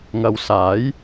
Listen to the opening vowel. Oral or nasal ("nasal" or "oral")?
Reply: oral